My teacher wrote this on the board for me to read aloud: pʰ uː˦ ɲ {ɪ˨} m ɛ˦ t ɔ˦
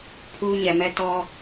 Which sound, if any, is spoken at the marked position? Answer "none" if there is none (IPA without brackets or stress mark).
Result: ɛ˨